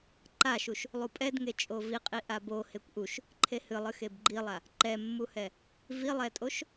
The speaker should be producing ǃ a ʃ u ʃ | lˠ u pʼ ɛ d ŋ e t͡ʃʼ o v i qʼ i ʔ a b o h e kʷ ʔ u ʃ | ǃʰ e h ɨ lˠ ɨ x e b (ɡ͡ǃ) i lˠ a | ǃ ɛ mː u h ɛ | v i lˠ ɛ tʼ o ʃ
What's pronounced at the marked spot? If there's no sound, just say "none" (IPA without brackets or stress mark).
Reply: ɡ͡ǃ